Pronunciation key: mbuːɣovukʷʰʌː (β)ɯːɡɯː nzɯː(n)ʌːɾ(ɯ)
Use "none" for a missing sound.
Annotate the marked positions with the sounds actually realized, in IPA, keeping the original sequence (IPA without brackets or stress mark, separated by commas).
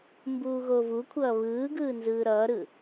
β, ɾ, ɯ